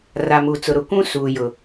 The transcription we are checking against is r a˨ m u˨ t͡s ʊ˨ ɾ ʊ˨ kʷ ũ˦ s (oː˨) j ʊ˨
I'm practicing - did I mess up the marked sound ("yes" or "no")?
yes